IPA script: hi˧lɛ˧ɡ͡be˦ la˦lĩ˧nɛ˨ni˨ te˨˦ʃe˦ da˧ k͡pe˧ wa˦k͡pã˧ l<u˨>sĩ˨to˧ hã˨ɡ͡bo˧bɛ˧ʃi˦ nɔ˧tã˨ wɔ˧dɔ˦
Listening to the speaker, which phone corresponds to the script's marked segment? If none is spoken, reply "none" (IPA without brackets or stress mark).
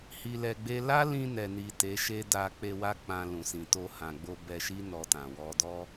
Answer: ũ˨